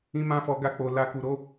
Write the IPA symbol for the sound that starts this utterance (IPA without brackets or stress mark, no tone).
ĩ